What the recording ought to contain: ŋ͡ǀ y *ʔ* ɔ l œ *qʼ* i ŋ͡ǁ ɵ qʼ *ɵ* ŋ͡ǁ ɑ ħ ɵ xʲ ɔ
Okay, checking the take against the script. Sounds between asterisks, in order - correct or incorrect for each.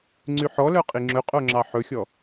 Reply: incorrect, correct, incorrect

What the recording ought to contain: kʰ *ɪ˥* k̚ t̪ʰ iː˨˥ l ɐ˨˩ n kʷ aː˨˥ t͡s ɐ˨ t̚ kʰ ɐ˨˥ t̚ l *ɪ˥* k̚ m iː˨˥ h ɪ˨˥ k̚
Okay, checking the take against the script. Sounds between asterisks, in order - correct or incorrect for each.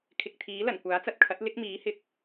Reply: incorrect, correct

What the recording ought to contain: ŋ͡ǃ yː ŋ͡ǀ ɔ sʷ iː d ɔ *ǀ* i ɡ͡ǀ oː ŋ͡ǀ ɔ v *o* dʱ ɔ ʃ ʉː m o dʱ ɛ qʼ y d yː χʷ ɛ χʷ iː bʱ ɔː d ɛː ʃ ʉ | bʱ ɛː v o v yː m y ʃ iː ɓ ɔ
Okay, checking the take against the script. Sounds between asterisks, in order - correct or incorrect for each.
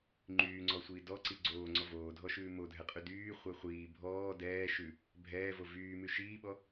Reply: correct, incorrect

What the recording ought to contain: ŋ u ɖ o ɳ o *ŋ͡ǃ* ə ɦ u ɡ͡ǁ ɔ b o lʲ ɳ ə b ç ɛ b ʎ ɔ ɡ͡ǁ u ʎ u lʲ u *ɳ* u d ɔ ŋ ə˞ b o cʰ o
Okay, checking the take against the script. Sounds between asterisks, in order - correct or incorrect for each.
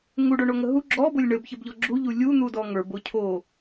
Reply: incorrect, incorrect

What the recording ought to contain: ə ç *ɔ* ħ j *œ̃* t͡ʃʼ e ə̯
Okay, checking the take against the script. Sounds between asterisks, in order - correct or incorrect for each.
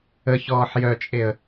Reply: incorrect, incorrect

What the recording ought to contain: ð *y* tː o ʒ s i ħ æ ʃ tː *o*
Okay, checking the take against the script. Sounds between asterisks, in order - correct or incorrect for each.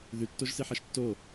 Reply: correct, correct

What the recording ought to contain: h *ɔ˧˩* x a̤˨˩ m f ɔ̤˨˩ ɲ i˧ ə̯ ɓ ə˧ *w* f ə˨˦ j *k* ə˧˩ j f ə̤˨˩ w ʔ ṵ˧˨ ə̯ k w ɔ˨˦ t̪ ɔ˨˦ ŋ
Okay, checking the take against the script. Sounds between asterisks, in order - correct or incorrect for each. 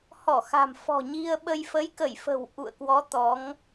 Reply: correct, incorrect, correct

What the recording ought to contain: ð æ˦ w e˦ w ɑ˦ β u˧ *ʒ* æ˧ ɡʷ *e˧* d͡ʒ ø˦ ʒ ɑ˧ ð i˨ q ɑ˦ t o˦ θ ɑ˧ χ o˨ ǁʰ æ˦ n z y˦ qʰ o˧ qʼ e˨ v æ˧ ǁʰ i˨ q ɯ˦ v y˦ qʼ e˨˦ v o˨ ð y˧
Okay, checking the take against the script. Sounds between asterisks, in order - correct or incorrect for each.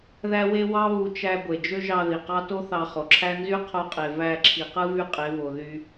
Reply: incorrect, incorrect

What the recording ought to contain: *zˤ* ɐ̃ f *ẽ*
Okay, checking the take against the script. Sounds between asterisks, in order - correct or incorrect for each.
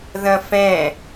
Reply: incorrect, incorrect

